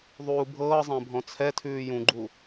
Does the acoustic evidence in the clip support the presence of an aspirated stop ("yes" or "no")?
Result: yes